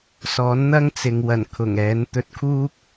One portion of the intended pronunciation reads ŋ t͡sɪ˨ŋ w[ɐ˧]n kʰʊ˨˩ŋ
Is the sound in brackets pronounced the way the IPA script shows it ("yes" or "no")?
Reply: no